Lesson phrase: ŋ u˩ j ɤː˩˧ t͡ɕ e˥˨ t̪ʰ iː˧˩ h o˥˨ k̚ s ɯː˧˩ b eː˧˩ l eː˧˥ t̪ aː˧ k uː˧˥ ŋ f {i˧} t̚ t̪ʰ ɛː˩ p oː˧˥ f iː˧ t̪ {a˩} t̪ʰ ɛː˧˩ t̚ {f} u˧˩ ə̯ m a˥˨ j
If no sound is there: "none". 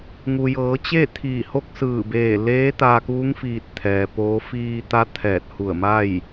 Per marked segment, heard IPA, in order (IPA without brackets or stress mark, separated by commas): iː˧, a˧˥, h